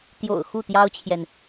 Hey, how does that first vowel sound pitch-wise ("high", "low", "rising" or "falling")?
low